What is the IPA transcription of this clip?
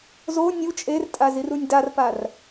z o nʲ u t͡ʃʼ e r tʼ a z i r u nʲ d a r p a r

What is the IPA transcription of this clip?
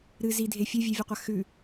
ɾ ɨ z i dʱ e fʲ ʉ vʲ ʉ vʲ ɵ qʷ a x ʉ

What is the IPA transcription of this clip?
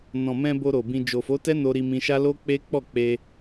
n ɔ̃˨ m ɛ̃˧ b o˧ ɾ o˨ b ĩ˧ d͡ʒ o˨ f o˨˦ t ɛ˦ n o˧ ɾ i˧ m ĩ˧ ʃ a˦ l o˦ k͡p e˦ k͡p ɔ˦˨ k͡p e˧

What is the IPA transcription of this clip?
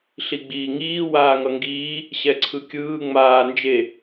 ɬ i ɡ͡b iː ŋ iː w aː ŋ ʌ ŋ ɡ iː | ɕ ɛ ǀʰ ɯ kʲ ɯː ŋ͡m aː n d͡ʒ e

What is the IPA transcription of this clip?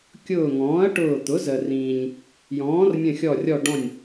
kʲ ʊː˧˩ ŋ ɔ̃ː˩˥ ɐ̯ ʈ ʊː˧˩ t̪ ʊ˩˥ z ə˩ r ĩː˩ ɲ | j ɔ̃ː˩˥ r mʲ ə̃˧˩ xʲ ɔ˧˩ rʲ ɔ˧˩ ɖ ɔ̃˧˩ nʲ

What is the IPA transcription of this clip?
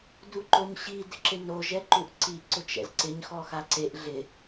d u ǃ o ɲ ɕ i d ɪ ǁ ɪ n o ʒ ɛ ǃ u ʔ ǀ i ǀ ʊ t͡ʃ ɛ̰ z ǀ ɪ ɲ x ɔ x a ǀ e ʔ ɮ ɪ

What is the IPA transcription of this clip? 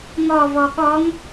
ŋ ɔ v ɔ ɠ ɔ ŋ

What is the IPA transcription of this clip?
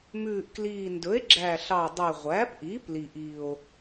m ʉː˨˩ ʔ k l iː˨˩ n d ɵ˩˥ e̯ ɡ͡ǁ æ˨˩ ɬ ɑ˨˩ dˤ ʉ˨˩ ʁʷ æː˩˥ p ʔ iː˩˥ p l i˨˩ ʔ i˨˩ o̯

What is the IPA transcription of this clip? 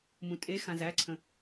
m ũ tʼ e x ã z æ ǀʰ ə̃

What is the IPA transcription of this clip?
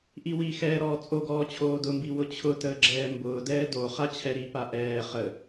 ʔ i w i x ɛː ɾ ɔː t͡sʼ o ɡ ɔː t͡ɕʰ oː d ʊ m b i w ʊ t͡ɕʰ ʊ t əː ɡ͡ǁ ɛː m b ʊː d ɛː d o χ a t͡ɕʰ ɛ ɾ i p a ʔ ɛː χ ə

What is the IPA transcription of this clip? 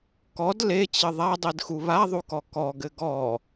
k ɔ d l e t͡ɕ ɘ ðˤ a dˤ i d x u β a ðˤ u k ɔ k ɔ ɡ ɘ ɡ ɔ

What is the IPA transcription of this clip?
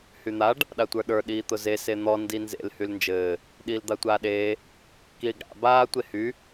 h y n̪ a ɖ | ɗ a tʷ ə˞ ɗ ə˞ ɗ iː t̪ ʊ z e s e n̪ ɔ n d i n z ḛ l h y l n d͡ʒ ɘː | ɗ iː l d̪ a tʷ aː ɗ eː | k iː ɡ ɽ a̰ b aː tʷ e h y

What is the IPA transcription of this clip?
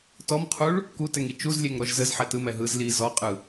t ɔ m qʰ u ɭ | k u t ɛ ŋ i t͡ʃ u z lʲ e ŋ ɾ ɔ ʒ z ə z ħ ɛ t ɯ m ɛ ɦ ɯ z l i z ɔ qʼ ɯ

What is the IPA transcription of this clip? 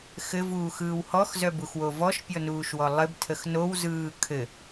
x ɘ v uː x ɯː w h ɔ x z œ b u x w o v ɔ ʃ pʲ ɔ n uː ʃ w ɔ lˠ ɘ b tʰ ə x n o w z ɯː kʰ ɘ

